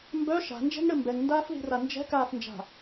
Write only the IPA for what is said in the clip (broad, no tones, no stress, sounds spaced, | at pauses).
m b œ ʃ a̤ n d͡ʒ ɛ̤ ŋ ɽ ɘ m b ɛ ŋ n d aː f ð i̤ r a n d͡ʒ ɛ̤ k aː f n d͡ʒ a̤